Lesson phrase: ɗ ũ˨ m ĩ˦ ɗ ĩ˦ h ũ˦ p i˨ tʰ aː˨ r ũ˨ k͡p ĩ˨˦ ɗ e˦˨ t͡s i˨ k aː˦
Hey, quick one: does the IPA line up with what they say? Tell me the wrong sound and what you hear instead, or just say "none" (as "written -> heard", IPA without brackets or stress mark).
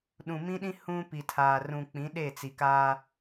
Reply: none